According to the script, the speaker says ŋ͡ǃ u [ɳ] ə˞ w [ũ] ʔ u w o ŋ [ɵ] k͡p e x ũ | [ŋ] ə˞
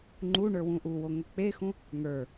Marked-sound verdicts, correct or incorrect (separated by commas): correct, correct, correct, correct